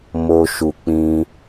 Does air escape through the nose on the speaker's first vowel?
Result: no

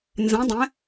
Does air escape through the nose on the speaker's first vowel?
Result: yes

